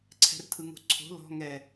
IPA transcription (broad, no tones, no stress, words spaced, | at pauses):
ǀʰɛ̤rtʰɯŋo̤ǀʰo̤ lɔ̤ ŋɛ